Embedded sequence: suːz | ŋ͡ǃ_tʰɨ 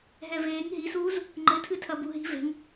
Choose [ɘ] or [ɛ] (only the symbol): ɘ